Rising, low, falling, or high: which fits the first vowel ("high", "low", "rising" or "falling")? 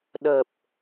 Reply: low